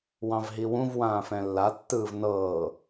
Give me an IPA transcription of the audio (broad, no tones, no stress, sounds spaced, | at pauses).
w ɑ̃ v ɦ i w ũ v w ãː f ɛ̃ lː a tː ɯː v n ɤː